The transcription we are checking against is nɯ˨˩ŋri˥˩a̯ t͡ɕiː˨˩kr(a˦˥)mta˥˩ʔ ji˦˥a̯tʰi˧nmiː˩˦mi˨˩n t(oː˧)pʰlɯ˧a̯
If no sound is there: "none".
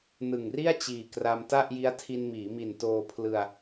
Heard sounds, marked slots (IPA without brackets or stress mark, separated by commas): a˧, oː˧